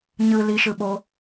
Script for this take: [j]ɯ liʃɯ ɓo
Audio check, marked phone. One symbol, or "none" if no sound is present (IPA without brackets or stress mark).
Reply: ɲ